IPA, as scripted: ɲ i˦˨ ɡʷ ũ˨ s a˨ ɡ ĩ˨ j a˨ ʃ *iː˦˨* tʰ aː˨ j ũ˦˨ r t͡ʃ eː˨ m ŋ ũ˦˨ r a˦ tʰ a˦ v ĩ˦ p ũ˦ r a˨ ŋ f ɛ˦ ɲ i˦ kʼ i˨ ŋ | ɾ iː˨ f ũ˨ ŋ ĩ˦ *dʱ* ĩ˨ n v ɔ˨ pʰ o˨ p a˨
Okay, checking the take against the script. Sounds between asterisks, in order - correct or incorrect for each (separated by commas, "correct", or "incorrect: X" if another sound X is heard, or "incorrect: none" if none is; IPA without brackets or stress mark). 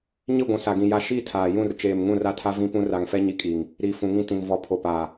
correct, incorrect: t